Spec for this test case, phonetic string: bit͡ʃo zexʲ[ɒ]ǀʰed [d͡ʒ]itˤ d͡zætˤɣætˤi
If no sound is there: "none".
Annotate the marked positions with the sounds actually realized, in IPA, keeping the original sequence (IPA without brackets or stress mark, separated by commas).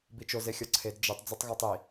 ɒ, d͡ʒ